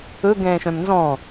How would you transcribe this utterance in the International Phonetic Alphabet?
ɵ ɡ ɛ̃ː ʃ œ̃ m n z ɔ̃

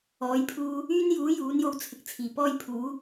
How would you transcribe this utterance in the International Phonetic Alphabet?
ɔː˨˥ j pʰ uː˧ | yː˥ n j uː˨˥ j uː˨˥ n j o˧ w t͡sʰ ɪ˨˥ k̚ t͡sʰ iː˨˩ p ɔː˥ j pʰ uː˨˥

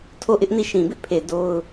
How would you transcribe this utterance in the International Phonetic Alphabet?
tʰ o˦˨ ʔ ɪ˦ ʔ n i˦˨ ʃ ĩ˨ b ɪ˦ ʔ pʰ e˨ d o˦ ʊ̯

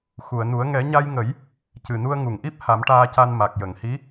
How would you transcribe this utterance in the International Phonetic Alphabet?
x u˨˩˨ ə̯ n u˨˩˦ ə̯ ŋ ɛ˨˩˦ ɲ a˧ j ŋ ə˨˩˦ j | c ɨ˨˩ n u˧ ə̯ ŋ u˨˩˨ ŋ ʔ i˦˥ p̚ h a˨˩˦ m ʈ aː˧ c a˧ n m a˨˩ k̚ j ə˨˩˨ ŋ h i˧˥

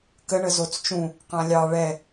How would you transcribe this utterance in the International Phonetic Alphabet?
k ə ɳ ə z o t͡s t͡ʃ ũ | q ã lʲ ɑ ɭ ɛ

